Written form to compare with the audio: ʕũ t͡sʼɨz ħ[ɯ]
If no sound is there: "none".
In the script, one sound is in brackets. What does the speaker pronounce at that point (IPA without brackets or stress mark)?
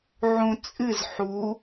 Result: u